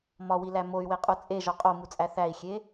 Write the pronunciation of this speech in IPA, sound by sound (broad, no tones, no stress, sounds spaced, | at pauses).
m ɒ w i l æ m o y̯ w e qʼ u t͡sʼ e ʒ ɒ qʼ o m u t͡sʼ æ θ æ i̯ xʲ e